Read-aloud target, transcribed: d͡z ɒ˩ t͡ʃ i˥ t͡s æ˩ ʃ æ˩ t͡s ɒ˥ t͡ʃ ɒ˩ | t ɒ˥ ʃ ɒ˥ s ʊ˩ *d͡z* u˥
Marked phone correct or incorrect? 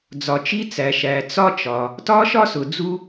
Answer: correct